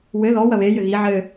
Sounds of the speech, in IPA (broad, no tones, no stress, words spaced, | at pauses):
wɘ ðɔ wɐβe jɘɣi ʕɘ